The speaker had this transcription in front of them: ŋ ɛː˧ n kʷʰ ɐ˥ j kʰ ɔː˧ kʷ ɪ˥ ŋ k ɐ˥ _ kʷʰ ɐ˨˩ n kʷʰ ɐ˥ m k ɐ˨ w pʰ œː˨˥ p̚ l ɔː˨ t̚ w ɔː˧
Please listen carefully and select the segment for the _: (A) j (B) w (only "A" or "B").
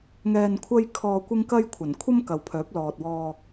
A